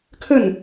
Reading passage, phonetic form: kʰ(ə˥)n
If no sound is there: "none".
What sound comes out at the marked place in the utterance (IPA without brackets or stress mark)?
ə˥˩